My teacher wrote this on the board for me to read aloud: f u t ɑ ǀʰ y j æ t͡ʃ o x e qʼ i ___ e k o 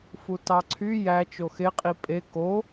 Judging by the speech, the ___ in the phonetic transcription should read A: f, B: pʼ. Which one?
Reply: B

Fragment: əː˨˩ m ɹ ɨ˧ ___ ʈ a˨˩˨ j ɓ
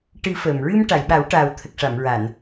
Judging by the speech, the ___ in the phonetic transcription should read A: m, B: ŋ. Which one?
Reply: A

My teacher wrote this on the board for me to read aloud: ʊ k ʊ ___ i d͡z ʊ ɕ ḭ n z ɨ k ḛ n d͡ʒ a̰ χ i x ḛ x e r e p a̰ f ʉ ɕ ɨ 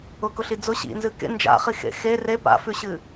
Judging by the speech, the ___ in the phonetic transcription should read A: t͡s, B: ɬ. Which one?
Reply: B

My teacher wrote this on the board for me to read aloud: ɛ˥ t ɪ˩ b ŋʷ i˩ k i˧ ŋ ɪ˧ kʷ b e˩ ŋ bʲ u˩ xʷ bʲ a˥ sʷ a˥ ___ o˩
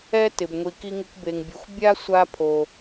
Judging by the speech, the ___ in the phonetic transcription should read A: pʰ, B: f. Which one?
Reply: A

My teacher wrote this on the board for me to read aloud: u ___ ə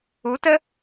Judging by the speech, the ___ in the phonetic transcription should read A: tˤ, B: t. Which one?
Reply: B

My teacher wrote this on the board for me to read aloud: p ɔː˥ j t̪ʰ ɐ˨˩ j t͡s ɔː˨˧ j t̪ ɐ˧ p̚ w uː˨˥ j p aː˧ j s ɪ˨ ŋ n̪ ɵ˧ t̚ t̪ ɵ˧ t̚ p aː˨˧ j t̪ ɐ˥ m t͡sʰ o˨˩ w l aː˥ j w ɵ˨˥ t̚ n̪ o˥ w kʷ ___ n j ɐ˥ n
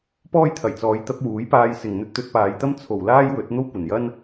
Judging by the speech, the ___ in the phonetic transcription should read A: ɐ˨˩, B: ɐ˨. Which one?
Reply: A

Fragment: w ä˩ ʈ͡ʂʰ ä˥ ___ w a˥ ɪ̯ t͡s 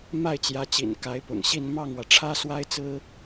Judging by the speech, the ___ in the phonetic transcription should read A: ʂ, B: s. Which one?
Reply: B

